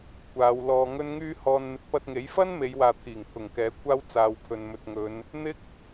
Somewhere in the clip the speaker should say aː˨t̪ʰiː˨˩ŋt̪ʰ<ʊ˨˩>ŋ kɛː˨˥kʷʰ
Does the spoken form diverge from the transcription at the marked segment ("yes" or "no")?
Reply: no